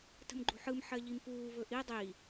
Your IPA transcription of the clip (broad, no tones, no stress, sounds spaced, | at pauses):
t ə̤ m ɡ͡ǃ ṳ ħ ɯ m ħ ɜ ʎ i m f uː v ɵ ʔ i dˤ i